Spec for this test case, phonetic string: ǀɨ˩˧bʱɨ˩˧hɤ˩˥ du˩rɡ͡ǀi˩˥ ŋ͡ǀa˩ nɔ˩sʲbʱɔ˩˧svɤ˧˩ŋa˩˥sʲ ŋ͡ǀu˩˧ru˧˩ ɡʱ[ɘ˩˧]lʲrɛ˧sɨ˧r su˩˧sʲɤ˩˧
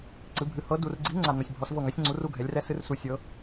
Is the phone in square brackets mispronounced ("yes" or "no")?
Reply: yes